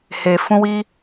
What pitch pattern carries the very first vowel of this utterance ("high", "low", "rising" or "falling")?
low